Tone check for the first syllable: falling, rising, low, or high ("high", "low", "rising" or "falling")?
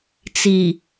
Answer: low